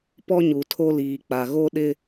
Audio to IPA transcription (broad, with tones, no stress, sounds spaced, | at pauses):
p ɔ˦ ɲ u˨ tʰ o˦ l iː˨ k͡p a˨ ɣ o˦ ɗ ɪ˦